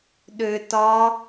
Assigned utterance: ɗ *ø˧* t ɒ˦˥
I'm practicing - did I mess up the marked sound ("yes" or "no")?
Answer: no